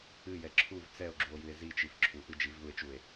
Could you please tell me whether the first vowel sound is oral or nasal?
oral